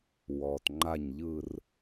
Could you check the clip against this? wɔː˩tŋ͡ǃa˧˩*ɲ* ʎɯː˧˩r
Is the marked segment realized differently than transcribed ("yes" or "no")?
no